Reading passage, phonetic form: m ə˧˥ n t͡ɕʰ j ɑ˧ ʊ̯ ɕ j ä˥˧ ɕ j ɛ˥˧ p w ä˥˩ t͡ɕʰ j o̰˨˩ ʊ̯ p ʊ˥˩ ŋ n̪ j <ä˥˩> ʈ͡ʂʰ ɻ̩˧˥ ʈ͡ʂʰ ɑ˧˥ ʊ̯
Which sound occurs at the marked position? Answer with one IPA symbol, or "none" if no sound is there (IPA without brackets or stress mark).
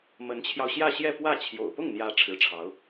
ä˧˥